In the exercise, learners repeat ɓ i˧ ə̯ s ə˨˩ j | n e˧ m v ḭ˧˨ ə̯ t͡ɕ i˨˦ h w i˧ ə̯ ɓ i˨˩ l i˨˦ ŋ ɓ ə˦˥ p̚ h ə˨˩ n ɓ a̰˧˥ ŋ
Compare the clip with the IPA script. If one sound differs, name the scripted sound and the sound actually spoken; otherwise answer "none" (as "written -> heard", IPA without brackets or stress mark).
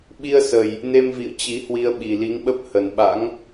none